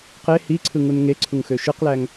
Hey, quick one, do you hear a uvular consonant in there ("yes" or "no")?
yes